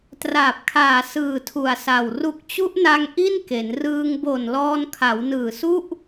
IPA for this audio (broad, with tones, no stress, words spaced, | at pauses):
traː˨˩p̚kʰaː˨˩ sɯː˨˩tʰu˨˩a̯sa˨˩w ru˨˩k̚t͡ɕu˦˥ʔna˧ŋ ʔi˥˩nke˩˦n rɯː˧ŋbo˨˩n lɔː˧nkʰa˩˦wnɯː˨˩ su˥˩ʔ